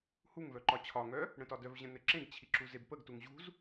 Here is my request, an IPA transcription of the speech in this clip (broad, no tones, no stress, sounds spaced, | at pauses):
h u ŋ v œ ǃ ɒ t͡ɕʰ ɒ ŋ œ | ɽ ə̃ t ɒ d œ v ʑ ə̃ n ɘ ǁ ẽ ɡ t͡ɕʰ i ǁ u z e b p ə ɡ t u ŋ ʑ ṳ z